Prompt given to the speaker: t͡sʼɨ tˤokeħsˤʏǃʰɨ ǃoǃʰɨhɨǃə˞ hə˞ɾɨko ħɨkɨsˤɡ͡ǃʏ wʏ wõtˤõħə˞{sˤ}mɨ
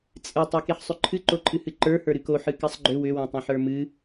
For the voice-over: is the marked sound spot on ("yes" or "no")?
no